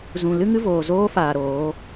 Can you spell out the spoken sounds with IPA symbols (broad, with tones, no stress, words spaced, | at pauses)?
zũ˨lɨ˦ ŋɨ˦voː˨zoː˦ faː˨ ɾoː˨˦